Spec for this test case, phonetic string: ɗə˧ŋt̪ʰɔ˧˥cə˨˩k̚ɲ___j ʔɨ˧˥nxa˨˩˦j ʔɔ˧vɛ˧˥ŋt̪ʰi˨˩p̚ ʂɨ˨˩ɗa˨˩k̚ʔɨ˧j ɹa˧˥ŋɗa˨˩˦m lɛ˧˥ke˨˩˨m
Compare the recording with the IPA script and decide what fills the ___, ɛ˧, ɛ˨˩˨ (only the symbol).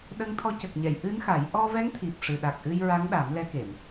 ɛ˨˩˨